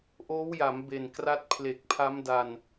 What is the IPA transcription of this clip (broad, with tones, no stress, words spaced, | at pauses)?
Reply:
ʔoː˦˥wja˩˦m be˨˩n kra˦˥t̚ pʰle˨˩k̚pʰa˦˥mda˧n